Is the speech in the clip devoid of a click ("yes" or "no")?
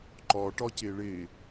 no